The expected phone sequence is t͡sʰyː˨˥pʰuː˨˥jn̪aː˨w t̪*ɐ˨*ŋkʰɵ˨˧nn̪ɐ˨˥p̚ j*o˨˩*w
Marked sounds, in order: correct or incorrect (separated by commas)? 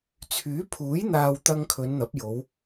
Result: incorrect, incorrect